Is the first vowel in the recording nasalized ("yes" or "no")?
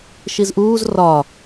no